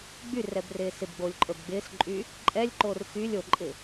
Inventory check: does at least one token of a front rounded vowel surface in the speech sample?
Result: yes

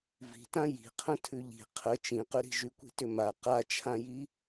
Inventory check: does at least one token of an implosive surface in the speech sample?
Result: no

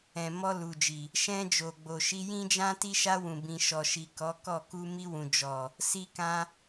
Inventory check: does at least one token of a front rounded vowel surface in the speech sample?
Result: no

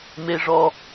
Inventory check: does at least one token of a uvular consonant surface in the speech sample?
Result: no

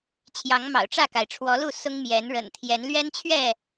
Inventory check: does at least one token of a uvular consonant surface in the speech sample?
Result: no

